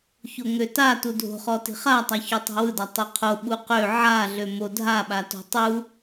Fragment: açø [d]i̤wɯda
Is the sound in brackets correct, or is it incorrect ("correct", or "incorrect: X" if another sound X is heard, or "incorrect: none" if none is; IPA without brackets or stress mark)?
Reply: incorrect: tˤ